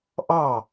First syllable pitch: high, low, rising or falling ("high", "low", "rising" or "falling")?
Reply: falling